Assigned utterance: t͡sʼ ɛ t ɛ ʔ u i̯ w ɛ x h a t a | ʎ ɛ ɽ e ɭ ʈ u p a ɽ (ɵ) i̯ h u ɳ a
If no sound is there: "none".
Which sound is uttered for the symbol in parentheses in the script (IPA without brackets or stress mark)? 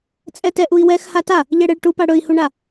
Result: ɵ